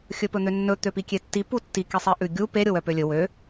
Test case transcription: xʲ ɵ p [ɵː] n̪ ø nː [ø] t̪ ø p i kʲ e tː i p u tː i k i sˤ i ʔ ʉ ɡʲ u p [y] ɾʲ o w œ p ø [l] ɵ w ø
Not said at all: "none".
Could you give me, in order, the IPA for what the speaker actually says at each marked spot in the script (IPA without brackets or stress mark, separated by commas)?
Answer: ɵ, ɵ, e, lʲ